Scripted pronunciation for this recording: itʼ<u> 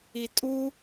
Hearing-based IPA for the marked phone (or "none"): u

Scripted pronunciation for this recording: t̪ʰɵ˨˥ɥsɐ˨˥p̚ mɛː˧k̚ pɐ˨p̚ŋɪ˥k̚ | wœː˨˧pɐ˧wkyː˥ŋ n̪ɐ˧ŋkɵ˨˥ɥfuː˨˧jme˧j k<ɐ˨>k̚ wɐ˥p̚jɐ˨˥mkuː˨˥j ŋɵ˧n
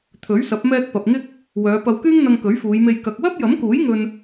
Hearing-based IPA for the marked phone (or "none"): ɐ˧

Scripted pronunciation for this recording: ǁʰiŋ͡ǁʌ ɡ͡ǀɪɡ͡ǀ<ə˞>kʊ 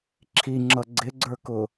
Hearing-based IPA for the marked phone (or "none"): ə˞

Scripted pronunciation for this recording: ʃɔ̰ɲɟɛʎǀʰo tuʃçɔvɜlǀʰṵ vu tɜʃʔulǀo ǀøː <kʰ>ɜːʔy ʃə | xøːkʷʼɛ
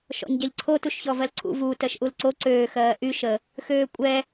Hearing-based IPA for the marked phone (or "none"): x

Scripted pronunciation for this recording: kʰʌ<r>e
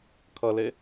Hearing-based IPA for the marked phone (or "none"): l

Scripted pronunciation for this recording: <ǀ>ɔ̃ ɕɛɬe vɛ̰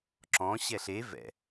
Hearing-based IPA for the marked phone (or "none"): ǁ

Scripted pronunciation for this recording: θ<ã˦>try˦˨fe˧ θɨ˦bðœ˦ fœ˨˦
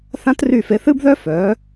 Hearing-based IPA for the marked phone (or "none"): ã˦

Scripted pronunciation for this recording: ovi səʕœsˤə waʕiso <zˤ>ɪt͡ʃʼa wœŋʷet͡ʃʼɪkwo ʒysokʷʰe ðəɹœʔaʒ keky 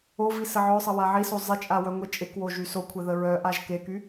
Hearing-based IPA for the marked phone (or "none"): zˤ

